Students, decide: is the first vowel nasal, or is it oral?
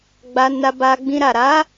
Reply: oral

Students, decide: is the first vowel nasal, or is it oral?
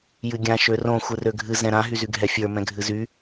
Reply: oral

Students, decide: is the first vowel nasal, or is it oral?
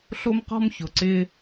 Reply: oral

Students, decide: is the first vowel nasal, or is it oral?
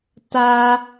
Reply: oral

